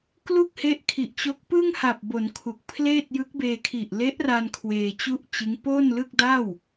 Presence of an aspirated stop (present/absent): present